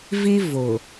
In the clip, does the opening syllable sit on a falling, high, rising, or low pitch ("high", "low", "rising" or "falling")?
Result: high